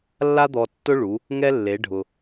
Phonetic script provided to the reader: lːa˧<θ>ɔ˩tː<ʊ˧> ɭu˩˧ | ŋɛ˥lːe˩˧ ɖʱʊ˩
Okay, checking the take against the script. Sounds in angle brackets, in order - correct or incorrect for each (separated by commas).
incorrect, correct